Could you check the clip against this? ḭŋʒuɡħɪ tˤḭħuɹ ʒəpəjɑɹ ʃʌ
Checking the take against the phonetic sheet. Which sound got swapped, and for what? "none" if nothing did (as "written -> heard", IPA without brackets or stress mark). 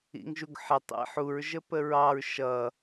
j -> ɹ